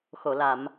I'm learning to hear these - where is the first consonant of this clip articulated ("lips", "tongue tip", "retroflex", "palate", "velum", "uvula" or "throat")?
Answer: velum